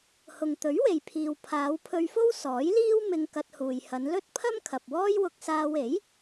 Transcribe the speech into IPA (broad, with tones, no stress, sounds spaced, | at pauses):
h ʊ˨ ŋ t̪ ɵ˨˥ ɥ w e˨ j pʰ iː˨ w pʰ aː˨˧ w pʰ ɵ˧ ɥ f o˥ w s ɔː˨˥ j l iː˥ w m ɪ˧ ŋ k ɐ˧ t̚ h uː˨ j h ɐ˨˧ n l ɵ˥ t̚ pʰ ɐ˥ m kʰ ɐ˨ p̚ w ɔː˥ j w ʊ˧ k̚ s aː˧ w e˨˥ j